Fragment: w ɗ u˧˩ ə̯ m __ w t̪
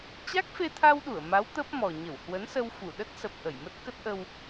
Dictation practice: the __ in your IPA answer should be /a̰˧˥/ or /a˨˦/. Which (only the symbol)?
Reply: a˨˦